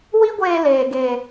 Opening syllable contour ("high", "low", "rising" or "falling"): high